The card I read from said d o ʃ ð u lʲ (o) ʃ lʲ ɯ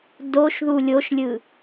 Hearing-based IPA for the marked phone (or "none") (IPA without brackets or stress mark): o